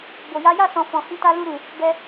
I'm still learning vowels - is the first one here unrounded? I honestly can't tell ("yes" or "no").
no